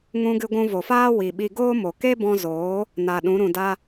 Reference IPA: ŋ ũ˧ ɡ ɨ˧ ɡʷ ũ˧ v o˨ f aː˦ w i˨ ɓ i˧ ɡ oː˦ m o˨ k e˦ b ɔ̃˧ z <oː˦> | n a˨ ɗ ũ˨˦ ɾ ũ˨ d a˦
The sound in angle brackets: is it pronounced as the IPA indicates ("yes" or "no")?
no